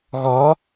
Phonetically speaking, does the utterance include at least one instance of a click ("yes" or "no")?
no